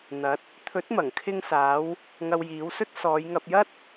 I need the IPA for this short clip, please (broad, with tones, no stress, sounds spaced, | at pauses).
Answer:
n̪ ɐ˨˥ t̚ | t̪ʰ ɵ˨˥ t̚ m ɐ˨˩ ŋ kʰ ɪ˧ ŋ s aː˨˧ w | ŋ ɐ˧ w j iː˨˥ w s ɵ˥ t̚ s ɔː˨˧ j ŋ ɐ˧ p̚ j ɐ˥ t̚